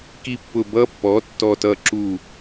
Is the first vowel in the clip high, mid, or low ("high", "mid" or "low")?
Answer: high